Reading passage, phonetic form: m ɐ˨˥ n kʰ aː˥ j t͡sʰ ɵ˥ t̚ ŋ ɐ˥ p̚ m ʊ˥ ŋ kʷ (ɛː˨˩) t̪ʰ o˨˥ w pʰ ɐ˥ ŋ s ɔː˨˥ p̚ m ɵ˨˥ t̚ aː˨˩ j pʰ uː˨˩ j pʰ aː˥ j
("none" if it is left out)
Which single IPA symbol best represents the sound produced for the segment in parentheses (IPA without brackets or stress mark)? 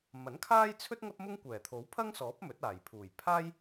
ɛː˨˩